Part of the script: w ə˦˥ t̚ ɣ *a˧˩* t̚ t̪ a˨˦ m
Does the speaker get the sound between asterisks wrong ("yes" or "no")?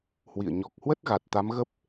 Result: yes